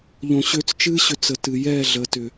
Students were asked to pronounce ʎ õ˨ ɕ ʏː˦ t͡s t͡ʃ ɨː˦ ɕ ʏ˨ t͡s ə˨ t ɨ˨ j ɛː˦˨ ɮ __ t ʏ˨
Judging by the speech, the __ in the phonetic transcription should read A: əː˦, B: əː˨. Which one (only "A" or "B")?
B